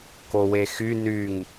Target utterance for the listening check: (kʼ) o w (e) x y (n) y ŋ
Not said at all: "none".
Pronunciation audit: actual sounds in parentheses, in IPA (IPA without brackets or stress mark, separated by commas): k, e, n